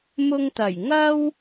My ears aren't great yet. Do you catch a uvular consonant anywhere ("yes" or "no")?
no